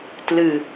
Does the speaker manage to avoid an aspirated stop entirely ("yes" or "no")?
yes